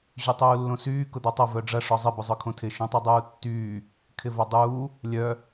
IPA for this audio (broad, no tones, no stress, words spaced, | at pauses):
ʑytˤuːlːõsyː kʊd̪otˤɐ vœɖ͡ʐɐ ʂɔzˤɪ bʊzˤœkʰõtʰɪ ʃõtˤidˤuːtːyː | kʰɪvɐdˤuː | lʲœ